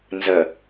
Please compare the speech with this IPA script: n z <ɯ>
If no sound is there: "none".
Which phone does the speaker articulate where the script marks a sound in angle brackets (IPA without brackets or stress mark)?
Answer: ə